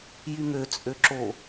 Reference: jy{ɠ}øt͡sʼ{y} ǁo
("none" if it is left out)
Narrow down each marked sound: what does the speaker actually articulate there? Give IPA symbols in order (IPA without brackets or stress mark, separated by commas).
ŋ, ø